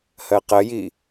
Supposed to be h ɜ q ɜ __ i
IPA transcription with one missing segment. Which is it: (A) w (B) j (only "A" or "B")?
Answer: B